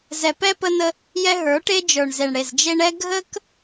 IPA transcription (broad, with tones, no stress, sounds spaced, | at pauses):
z ɛ˨ p ɛ˦ p ə˦ n ə˦ | j ɛ˦ ɦ ə˞˨˦ ʈ e˦ d͡ʒ ə˞˨ ɳ z e˨ ɳ ɽ e˨ z d͡ʒ e˦ ɳ ɛ˦ ɡʱ ə˦ k